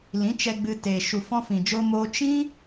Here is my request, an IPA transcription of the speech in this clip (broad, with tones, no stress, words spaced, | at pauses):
lĩ˨˦t͡ʃɛ˧ɡ͡bɨ˧ te˨ ʃu˨fɔ̃˧fĩ˨d͡ʒo˧ mo˧t͡ʃĩ˦